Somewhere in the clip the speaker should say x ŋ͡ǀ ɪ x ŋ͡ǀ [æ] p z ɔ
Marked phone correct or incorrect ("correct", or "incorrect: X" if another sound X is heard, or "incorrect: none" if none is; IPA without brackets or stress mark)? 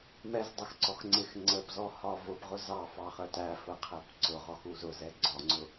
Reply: incorrect: ə